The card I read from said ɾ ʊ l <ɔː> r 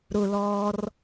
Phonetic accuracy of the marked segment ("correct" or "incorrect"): correct